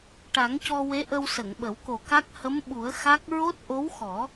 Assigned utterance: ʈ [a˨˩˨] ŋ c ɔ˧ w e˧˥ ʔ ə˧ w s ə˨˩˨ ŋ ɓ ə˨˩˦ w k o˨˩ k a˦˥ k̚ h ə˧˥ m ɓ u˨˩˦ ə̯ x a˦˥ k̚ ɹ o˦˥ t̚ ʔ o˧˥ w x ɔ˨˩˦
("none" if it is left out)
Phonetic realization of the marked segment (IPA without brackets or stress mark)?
a˨˩˦